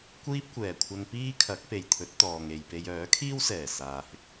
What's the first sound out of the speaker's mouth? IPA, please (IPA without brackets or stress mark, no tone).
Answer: kʷ